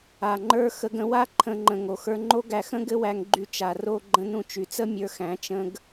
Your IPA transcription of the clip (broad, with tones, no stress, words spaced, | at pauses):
a˨ŋ͡ǃə˞˦ xə˧ɡə̃˧wa˦ ǃʰə̃˧ ŋ͡ǃə̃˨ ŋo˨xə˞˧ŋ͡ǃo˦ɡæ˧ xə̃˦ɡɘ˦wæ˧ŋ ɡ͡ǃy˧t͡ʃa˨ro˦˨ ɡ͡ǃə̃˧nũ˧ t͡ʃy˨t͡sə˦ mʲə˞˧xæ̃˨˦ t͡ʃə̃˦ɡ